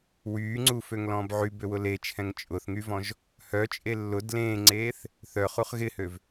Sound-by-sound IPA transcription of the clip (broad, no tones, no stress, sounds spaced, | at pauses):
w yː ŋ͡ǀ u f ø ŋ l ɔ̃ː b ʕ y b ø w ʊ l e t͡ʃʰ ɛ̃ ŋ t͡ʃʼ ʊ θ ŋ y v ɔ̃ ʒ | h œ t͡ʃʼ e lː ʊ d l ẽː ŋ͡ǀ eː θ | θ œ χ u χ ɣ ɪ h ø v